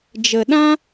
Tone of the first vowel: low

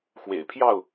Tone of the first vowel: low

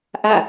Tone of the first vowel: falling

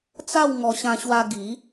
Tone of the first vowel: falling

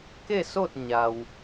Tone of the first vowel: falling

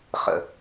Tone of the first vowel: falling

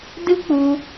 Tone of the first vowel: high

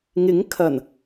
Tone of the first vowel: rising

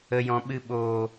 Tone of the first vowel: low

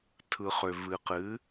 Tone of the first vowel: low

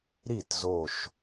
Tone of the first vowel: falling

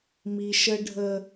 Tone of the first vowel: low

